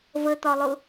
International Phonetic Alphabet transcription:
v ə t̪ ɒ lˠ ʊ

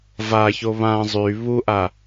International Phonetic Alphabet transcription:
v a ç o β ã zˤ y β u ʔ a

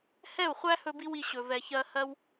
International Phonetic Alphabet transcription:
h ɛ˦˨ u̯ χʷ æ˦ h ɵ˦ b i˦ w i˧ ɕ ɵ˨ v ɛ˨ ç ɜ˧ h ɜ˦ w

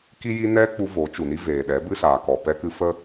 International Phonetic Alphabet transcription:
k i˦ j i˦ n ɛ˦ k͡p u˧ v o˨˦ t͡ʃ u˨ n i˦ v eː˨ ɗ ɛ˨˦ b ɨ˦ s aː˨ k ɔ˨ p ɛ˧ k ɨ˧ f ə˦

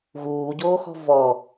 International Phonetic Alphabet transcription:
ɣ uː ɟ oː x ɔ̤ v ɔ

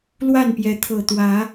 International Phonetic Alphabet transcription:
l w a˥˨ n p j ɛ˨˦ t̪ʰ ɤ˨˩ t̪ w ä˨˦

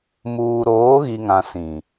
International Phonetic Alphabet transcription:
m uː˨ ɾ oː˨˦ ɣ i˨ ŋ ã˨ s ĩ˨

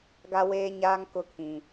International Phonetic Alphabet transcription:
ɡ a˦ w eː˦ ɲ aː˦ ŋ k ʊ˦ kʰ ĩ˨

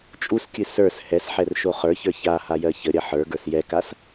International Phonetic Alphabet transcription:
t͡ʃʼ u s kʲ ɨ s ə˞ s h ɛ s ħ ɛ r ʃ o χ ə˞ ç ə˞ ç a h a j ɜ ç ə ɾʲ ɐ ħ ə˞ ɡ ə˞ s j ɛ k a s

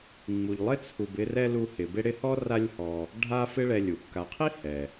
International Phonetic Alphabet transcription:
ŋ͡m u˨ ʎ lˠ ɪ˥ t͡sʰ u˨ b ɪ˦ r ɛ˥ l u˦ h ɪ˨ b ɪ˥ ɽ ɪ˦ h ɔ˥ r a˦ lʲ h ɔ˨ | ɖʱ a˥ f ɪ˦ ɭ ɛ˨ lʲ u˩ kː a˨ qʰ i˥ h ɛ˩

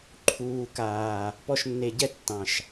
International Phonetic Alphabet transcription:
ǃʰ uː˨ k aː˨ | p ɔ˦ ʃ nː e˧ ɟ ɛ˦ tː ɑ̃˨ ʃ

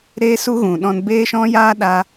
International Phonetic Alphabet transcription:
ɾ eː˦ s u˦ ɣ ũ˨ ɗ ɔ̃˧ n b eː˦ ʃ ɔ̃˦ j aː˦ ɗ a˧

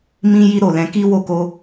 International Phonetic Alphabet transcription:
m ĩ˦ j i˦ ɾ o˦˨ l ɛ̃˧ k i˦ w o˦˨ k o˧

